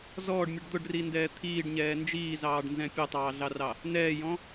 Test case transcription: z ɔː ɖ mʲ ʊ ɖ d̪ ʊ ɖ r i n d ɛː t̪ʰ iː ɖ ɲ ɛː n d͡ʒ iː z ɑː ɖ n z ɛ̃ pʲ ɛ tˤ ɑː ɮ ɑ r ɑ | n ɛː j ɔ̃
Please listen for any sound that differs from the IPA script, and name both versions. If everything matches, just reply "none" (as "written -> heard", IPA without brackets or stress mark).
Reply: none